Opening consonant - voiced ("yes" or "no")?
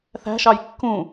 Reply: no